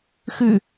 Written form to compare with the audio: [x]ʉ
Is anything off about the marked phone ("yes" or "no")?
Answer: no